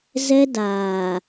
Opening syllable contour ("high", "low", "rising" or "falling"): high